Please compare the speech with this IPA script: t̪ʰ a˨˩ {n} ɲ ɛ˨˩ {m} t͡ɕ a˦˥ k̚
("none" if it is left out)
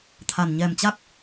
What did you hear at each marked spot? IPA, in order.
n, m

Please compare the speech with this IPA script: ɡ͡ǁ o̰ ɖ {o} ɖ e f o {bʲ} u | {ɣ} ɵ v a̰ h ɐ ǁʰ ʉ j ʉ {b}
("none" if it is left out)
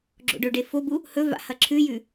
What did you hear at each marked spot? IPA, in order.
ɵ, b, h, none

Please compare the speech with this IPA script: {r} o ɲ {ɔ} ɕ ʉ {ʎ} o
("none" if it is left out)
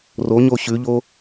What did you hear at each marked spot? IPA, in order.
r, o, ʎ

